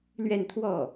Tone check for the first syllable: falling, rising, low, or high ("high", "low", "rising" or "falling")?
falling